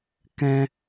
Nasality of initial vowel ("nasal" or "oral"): nasal